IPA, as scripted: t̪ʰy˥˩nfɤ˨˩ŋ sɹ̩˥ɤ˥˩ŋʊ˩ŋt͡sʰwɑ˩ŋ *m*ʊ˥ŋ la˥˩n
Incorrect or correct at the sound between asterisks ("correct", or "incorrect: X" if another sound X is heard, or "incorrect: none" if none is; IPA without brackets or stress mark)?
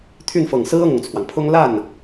incorrect: pʰ